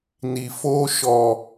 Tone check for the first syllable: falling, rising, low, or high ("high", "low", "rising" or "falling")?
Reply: low